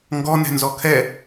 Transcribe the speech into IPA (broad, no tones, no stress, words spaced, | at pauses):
ŋɡɔnɛ̤nzɔ kʰɛ